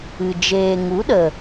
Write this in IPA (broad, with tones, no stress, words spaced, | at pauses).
ɨ˨ d͡ʒeː˨ŋu˨˦ɗə˨